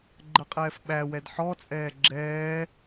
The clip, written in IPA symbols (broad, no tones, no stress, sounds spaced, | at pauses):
ɡ͡ǃ ə qʼ ɛː f ɓ æ w ɛ d ħ ɔ t͡sʼ ɛː ɡ͡ǁ ɛː